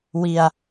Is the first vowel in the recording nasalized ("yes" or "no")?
no